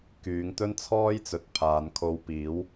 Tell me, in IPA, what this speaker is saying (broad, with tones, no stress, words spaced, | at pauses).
kyː˨˧ŋt̪ɵ˥nt͡sʰɔː˥jt͡sɵ˨t̚ pʰaː˨˧nkʰo˧wpiː˨˥w